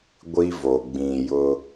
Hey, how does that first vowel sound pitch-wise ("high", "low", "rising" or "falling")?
high